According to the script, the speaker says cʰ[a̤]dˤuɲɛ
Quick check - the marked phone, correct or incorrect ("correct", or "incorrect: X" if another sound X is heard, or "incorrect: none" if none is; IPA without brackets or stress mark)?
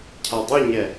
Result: incorrect: a